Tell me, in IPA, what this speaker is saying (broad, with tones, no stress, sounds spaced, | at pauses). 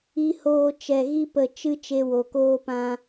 i˧ h oː˧ t͡ʃ ɛ˧ ɣ i˦ p ə˧ t͡ʃ ɨ˦ t͡ʃ e˦ w o˧ k oː˦ p ã˦